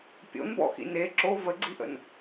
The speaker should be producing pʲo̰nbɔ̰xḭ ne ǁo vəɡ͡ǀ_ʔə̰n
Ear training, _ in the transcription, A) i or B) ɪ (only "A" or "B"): A